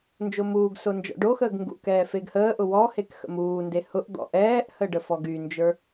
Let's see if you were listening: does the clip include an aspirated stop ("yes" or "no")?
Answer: no